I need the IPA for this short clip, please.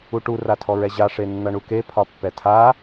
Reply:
u ʈ u r a tʰ ɔ ɹ ɛ ʑ a ʂ e nː ʌ ɳ u k e pʰ ɒ pː ɛ tʰ a

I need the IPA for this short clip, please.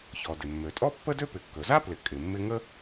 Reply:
ç ɔ˩ d ɪ˩ mː ø˩ tʼ ɔ˥ pː ə˥ d ø˥ p ɪ˩ kː ɵ˩ z a˥ p l ɪ˩ kʼ ɪ˩ mː ɪ˥ ŋ ə˥

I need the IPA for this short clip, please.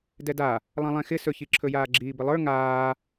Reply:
d ɛ d a | lˠ ã lˠ ɛ̃ x ɪ s ɵ ç i ǁʰ ɵ j aː ɡ͡ǁ iː b ɪ lˠ ə˞ ŋ aː

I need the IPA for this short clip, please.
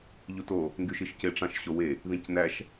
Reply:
ʎ u t o | ŋ ɡ y ʃ i ʃ c e ʈ͡ʂ ɑ̃ ʃ ɕ o w e | ð ĩ c n æ ʃ

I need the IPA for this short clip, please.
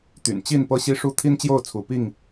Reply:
t̪ y̰˨˩ n t͡ɕ i˥˨ n p ɤ˦ ɕ i˦ ʂ u˦ t̪ʰ i˦ n t͡ɕ j o˥˨ ʊ̯ t͡sʰ u˦ p i˥˨ ŋ

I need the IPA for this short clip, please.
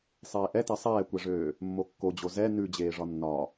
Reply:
sˤ eː ʔ ɛ t ɛ sˤ ɛː kʷ ɛ ʐ øː | mː o kː o d͡ʑ o z ɛ n ʉ d͡ʑ eː ʐ ɒ nː ɒ

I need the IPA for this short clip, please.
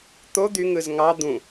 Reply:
t̪ o d̪ y ŋ ɯ z ŋ ɑ d̪ ũ

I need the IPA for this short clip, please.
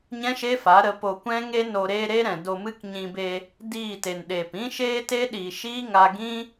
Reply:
ɲ ɛ̃˦ ʃ e˦ f a˨˦ ɾ ə˨˦ p o˧ kʷ ɛ̃˦ ŋ e˦ n o˧ ɾ eː˦ ɾ e˦ ɾ ɛ̃˨ d o˧ m ɨ˦ k ɲ ĩ˧ b e˧ | d iː˦˨ t e˨ n ɗ eː˨ p ĩ˦ ʃ eː˦ t e˦ ɗ iː˨ ʃ iː˦ ŋ a˧ ɡ ĩ˦

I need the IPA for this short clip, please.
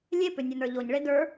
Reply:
lʲ e p ʏ nʲ ə˞ n ə˞ ʎ o ɲ ɭ e d ə˞

